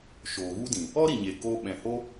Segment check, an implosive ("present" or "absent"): present